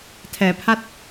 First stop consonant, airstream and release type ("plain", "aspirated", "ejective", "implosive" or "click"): aspirated